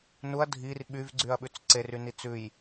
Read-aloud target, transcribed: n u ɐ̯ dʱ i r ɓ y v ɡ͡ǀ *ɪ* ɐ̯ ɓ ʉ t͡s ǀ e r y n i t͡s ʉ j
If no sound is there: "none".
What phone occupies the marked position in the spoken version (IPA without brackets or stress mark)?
y